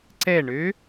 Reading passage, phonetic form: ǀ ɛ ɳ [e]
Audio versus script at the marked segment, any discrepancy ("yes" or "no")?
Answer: yes